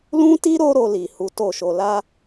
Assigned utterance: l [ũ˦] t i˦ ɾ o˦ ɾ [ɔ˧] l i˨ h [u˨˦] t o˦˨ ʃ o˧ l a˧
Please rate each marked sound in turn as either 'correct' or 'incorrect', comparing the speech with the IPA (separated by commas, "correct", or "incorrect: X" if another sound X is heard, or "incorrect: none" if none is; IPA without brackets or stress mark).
correct, incorrect: o˧, correct